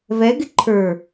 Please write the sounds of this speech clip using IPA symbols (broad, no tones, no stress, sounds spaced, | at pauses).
v ɛ ɡ ɪ ǃʰ ə˞